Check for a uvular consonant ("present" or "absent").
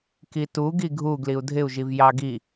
absent